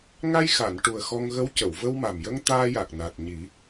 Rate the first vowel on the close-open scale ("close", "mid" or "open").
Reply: open